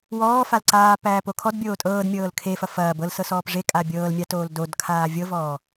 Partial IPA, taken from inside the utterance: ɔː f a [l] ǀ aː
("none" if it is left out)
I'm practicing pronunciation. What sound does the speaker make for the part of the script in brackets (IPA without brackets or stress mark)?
l